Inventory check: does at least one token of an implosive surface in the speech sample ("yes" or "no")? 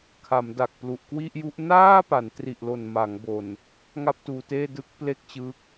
no